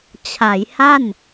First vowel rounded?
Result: no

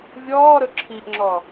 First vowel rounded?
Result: yes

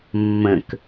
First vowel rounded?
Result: no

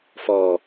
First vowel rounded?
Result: yes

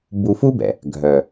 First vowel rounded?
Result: yes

